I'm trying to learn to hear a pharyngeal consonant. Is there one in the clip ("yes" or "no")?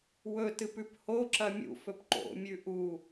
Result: no